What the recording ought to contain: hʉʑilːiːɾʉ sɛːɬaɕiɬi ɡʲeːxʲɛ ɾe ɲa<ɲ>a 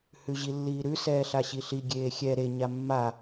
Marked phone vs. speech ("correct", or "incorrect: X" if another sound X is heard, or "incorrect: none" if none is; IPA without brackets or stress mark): incorrect: mː